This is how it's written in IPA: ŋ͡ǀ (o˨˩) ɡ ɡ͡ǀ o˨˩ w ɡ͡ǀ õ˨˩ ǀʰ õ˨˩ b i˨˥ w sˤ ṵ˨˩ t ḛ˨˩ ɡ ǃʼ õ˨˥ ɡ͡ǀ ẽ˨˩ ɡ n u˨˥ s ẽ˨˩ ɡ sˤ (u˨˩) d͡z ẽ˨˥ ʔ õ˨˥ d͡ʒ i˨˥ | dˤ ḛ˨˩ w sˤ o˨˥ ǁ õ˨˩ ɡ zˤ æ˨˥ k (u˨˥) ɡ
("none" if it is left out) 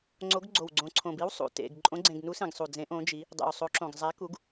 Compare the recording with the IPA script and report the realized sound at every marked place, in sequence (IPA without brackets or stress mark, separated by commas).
o˨˥, u˨˩, u˨˥